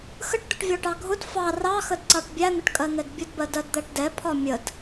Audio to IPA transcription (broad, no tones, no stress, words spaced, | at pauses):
xəʈd̪ʊʈvʲɒʈɑ ɡʱʊd fɑ rɑxədǀɑʈ bʲæn̪əʈkʼɜn̪ɛd bʲʊdbɜdɜdd̪æʈ dɛpʰɒ mʲəd